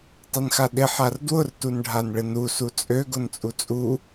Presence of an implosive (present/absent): present